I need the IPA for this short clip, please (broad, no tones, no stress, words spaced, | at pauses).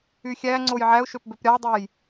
yxʲæ ŋ͡ǀojʕæʊ̯ʃøpbøp ɾʲɑdˤej